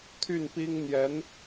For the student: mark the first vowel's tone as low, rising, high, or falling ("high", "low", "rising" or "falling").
falling